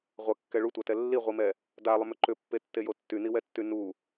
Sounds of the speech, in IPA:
ʁʷɐkːɛ ɭutʷatɛ lːiʁʷimɛ | dalˠʏmʏ ǃʏpːetːejo tːyniwɛtːy nu

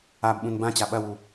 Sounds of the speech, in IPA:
abɓũn bãt͡ɕa ɓɐwu

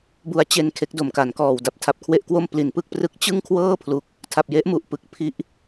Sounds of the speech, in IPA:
bu˧a̯t͡ɕe˧n kʰe˦˥k̚do˨˩mka˩˦nkɔː˨˩w da˨˩p̚tʰa˨˩p̚kʰwe˦˥ʔkwo˥˩m pli˨˩npɯ˥˩k̚prɯ˦˥k̚ t͡ɕɯ˥˩ŋ kʰwɤː˥˩pʰlu˨˩k̚ | tʰa˨˩p̚je˦˥ʔ mu˨˩ʔpɯ˨˩k̚ pʰi˦˥ʔ

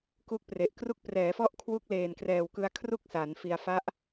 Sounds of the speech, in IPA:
ku˦˥k̚pre˨˩ʔkru˥˩k̚ prɛː˩˦ fɔ˥˩ʔkʰwu˦˥k̚ leː˨˩nkrɛː˨˩wkɯ˧a̯ kʰru˥˩k̚ sa˩˦nfi˧a̯ fa˦˥ʔ

